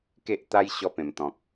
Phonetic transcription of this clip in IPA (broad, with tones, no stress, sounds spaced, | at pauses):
k e˦ ʔ t̪ a˦ j ɕ ɔ˧ p ẽ˨˩ m t̪ ɔ̃˨ k̚